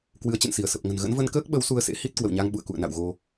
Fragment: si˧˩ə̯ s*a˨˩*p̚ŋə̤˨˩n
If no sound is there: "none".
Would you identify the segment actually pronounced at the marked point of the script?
ə˨˩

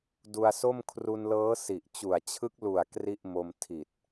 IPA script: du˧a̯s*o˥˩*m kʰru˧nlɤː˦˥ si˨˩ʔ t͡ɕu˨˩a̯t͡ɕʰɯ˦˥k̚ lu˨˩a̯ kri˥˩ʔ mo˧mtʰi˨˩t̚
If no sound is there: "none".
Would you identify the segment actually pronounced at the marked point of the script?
o˥˩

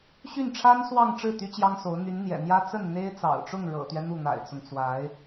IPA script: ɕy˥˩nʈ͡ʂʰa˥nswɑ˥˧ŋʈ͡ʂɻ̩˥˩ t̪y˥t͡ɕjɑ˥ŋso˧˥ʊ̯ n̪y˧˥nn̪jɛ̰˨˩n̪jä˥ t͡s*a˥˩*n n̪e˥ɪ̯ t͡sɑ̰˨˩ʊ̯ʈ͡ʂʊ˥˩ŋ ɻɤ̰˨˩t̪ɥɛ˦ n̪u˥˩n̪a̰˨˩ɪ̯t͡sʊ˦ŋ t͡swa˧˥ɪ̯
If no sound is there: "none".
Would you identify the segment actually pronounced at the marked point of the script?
ə˥˩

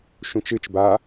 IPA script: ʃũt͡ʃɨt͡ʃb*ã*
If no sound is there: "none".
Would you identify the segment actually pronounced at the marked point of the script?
a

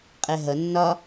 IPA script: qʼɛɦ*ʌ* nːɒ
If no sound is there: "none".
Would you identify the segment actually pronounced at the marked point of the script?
ʌ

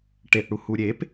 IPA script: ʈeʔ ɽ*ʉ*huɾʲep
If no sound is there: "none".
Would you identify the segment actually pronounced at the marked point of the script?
u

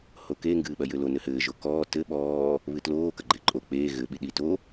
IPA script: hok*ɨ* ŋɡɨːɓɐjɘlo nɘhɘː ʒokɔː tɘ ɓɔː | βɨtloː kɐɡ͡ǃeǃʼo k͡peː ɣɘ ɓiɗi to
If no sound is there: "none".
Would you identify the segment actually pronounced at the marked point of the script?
e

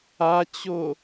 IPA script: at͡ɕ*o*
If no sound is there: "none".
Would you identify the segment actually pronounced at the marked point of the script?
o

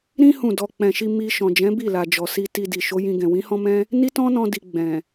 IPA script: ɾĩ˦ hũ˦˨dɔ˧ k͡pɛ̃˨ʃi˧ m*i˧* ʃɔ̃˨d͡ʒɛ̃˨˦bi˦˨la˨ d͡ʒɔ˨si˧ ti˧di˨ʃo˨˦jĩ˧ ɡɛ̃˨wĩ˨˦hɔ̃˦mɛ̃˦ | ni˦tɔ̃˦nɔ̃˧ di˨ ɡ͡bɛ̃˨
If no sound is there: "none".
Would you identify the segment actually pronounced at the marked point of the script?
i˧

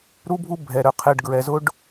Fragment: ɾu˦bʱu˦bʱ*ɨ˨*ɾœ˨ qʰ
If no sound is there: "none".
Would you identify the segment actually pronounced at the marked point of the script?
ɛ˨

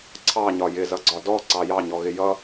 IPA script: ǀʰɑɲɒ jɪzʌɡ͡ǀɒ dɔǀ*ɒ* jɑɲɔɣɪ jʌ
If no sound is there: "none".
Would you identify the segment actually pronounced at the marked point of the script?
ɑ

